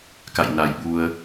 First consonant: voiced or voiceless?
voiceless